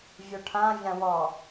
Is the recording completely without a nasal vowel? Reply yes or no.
no